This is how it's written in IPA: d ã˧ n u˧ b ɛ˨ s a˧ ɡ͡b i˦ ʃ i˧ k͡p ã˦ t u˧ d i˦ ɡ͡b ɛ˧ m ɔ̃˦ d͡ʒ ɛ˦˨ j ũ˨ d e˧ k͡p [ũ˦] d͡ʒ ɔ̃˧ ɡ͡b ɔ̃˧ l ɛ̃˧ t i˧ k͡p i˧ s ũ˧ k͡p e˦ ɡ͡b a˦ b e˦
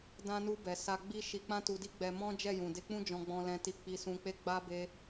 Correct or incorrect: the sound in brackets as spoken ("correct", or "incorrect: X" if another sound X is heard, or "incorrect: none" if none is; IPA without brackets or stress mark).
correct